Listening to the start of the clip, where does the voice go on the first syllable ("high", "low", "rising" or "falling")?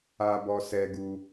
high